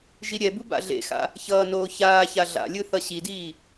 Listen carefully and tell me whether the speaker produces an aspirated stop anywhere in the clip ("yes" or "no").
no